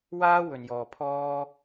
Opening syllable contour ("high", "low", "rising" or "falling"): high